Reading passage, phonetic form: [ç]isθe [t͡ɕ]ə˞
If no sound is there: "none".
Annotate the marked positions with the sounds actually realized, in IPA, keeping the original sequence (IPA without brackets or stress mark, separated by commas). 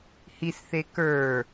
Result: h, k